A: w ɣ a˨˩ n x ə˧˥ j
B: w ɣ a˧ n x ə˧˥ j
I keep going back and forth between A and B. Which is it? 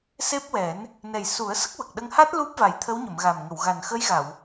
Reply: A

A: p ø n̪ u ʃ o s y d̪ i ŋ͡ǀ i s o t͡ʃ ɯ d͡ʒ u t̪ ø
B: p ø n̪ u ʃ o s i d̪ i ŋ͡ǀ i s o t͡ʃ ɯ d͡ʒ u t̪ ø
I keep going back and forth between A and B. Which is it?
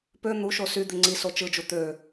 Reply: A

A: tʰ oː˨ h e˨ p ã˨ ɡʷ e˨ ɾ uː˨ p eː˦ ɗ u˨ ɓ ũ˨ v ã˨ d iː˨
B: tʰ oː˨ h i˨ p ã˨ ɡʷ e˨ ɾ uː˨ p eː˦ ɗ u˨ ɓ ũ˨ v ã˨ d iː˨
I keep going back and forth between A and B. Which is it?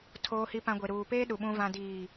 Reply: B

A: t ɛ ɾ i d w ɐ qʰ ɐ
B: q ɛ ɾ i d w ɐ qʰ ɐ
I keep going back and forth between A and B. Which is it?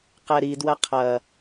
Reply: B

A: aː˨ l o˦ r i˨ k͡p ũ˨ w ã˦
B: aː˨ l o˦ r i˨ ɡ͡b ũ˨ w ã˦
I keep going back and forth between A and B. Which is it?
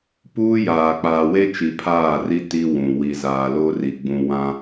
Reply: B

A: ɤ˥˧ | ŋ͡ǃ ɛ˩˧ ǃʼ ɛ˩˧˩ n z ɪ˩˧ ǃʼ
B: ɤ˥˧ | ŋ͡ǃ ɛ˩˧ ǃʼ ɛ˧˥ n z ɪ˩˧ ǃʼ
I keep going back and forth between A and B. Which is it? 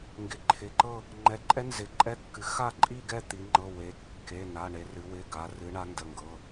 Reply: B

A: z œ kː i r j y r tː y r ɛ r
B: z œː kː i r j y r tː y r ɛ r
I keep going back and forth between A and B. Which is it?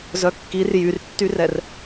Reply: A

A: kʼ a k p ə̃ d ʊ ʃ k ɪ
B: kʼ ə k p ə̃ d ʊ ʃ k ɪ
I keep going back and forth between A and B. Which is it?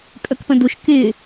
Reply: B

